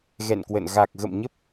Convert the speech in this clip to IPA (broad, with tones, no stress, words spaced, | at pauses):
ɣɛ̰˧˨nkwə̰˧˨n ɣa˨˩k̚ɣə̰˧˨mɲə˦˥p̚